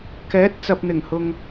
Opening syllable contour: rising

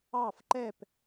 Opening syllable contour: falling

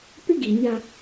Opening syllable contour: high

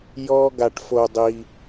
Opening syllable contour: high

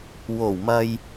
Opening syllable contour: low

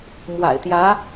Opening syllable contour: low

